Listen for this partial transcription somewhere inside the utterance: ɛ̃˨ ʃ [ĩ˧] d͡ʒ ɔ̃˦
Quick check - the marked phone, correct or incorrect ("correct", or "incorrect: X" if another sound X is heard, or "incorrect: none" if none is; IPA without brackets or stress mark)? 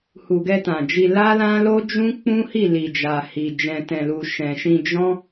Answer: correct